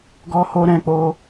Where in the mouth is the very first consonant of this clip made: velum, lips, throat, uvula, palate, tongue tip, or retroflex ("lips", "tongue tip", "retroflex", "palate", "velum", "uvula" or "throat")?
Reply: velum